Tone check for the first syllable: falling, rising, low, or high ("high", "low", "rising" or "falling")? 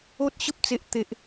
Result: high